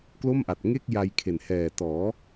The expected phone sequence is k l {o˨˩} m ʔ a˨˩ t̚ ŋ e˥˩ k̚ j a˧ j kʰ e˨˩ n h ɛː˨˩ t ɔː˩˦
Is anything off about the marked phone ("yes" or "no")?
yes